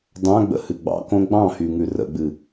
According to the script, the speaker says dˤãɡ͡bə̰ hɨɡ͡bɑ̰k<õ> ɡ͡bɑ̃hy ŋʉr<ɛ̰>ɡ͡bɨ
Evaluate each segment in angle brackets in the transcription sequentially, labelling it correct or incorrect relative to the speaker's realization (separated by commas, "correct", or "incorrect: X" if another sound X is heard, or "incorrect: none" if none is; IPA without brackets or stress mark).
correct, incorrect: ə̰